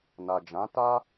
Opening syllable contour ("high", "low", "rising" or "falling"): low